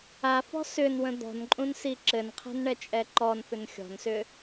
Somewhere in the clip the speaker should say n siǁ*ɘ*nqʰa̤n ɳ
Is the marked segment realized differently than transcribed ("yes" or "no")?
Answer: no